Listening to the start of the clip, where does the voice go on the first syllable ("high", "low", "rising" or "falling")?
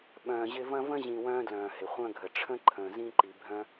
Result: low